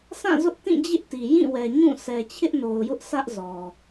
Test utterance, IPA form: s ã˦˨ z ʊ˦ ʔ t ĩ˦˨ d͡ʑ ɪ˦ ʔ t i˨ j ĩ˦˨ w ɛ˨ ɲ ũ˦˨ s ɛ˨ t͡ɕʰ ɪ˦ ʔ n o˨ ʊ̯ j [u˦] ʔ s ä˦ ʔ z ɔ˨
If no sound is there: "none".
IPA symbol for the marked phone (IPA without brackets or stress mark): ʊ˦